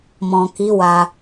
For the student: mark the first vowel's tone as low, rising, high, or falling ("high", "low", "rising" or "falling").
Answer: low